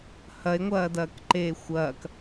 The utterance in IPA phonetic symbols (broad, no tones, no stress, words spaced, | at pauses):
hɐe̯ŋʷɐːdɐːkǃeː xʷɐːk